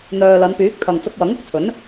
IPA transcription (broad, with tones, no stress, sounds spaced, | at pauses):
n̪ œː˨ l ɐ˨˧ n p yː˨˥ k̚ t̪ʰ ɐ˨ ŋ t͡s ʊ˧ k̚ w ɐ˨˥ ŋ ʊ˨˥ k̚ t͡sʰ ɵ˨˥ n